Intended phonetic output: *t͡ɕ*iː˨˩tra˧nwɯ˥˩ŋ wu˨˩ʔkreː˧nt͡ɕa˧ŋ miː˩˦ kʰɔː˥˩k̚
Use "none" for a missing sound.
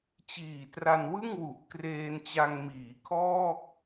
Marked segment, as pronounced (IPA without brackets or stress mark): t͡ɕ